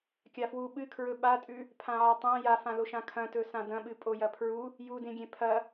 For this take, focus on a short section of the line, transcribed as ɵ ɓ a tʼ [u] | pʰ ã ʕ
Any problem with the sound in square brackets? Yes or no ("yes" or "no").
yes